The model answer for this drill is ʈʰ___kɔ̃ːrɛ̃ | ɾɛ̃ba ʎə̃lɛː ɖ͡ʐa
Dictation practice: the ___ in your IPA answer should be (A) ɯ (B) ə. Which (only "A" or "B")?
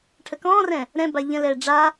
B